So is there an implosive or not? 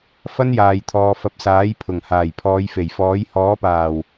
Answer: no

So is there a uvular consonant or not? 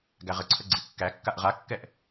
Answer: yes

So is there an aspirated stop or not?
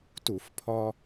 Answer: yes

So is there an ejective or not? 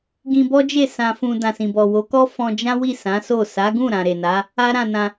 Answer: no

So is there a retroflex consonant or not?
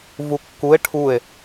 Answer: yes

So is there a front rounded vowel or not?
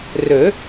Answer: yes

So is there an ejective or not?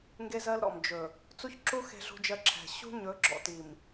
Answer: no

